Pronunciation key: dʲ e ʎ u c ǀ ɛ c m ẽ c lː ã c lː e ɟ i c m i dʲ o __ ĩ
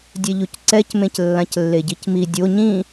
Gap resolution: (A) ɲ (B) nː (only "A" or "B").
A